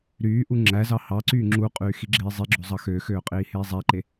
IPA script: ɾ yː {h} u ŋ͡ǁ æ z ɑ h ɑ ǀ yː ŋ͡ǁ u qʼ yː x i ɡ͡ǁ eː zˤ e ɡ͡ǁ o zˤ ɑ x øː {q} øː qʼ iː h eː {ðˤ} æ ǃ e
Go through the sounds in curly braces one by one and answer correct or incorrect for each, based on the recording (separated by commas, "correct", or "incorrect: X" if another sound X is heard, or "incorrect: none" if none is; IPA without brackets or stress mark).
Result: incorrect: ʔ, incorrect: x, incorrect: zˤ